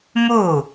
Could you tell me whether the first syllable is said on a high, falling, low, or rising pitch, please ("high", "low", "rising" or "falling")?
falling